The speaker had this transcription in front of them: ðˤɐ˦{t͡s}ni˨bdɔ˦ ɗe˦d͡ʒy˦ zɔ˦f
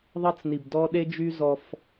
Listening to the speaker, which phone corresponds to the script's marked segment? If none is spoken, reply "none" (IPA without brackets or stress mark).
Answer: t͡s